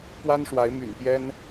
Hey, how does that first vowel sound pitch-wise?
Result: high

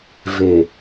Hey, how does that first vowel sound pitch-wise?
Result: low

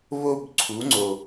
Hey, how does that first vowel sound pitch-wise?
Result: high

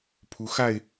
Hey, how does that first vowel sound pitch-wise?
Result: rising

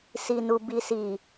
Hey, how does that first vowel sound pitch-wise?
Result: low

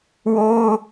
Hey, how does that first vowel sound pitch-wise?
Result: high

